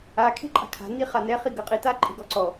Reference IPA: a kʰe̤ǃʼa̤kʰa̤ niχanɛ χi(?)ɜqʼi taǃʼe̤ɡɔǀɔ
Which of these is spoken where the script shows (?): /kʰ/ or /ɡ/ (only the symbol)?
ɡ